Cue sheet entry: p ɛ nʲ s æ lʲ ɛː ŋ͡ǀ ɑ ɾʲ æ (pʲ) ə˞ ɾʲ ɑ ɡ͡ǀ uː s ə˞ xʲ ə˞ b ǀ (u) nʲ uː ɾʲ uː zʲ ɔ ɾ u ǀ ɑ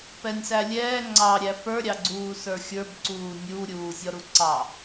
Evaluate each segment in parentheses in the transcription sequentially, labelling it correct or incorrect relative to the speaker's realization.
incorrect, incorrect

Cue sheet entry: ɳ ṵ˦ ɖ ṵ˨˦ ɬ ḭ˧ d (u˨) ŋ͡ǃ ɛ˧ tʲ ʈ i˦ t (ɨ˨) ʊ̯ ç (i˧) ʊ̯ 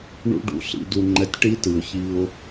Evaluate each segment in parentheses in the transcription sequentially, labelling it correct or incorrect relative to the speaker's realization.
incorrect, correct, correct

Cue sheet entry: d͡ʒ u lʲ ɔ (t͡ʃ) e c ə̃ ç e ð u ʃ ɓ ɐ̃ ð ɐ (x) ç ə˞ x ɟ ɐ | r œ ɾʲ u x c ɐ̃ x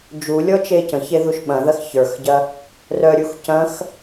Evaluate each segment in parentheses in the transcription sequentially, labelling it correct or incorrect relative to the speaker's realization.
correct, correct

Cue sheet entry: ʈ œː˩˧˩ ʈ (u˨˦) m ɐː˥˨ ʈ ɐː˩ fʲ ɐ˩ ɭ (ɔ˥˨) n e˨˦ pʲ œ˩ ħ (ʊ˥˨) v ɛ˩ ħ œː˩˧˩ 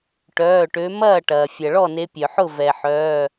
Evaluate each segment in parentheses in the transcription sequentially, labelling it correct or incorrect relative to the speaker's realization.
incorrect, correct, correct

